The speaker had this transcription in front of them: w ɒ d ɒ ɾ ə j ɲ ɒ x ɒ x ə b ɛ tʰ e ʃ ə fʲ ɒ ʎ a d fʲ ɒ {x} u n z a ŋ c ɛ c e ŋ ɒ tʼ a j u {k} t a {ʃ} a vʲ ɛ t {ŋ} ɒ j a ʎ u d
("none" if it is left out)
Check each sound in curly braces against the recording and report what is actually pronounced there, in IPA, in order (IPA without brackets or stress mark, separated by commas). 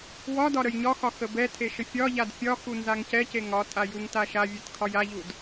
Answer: x, ŋ, ʃ, kʰ